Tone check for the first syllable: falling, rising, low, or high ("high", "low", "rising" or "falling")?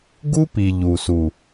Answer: high